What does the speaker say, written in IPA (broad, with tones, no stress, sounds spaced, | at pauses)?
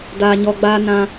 d aː˨ ɲ ɔ˨ ɡ͡b aː˧ n ã˧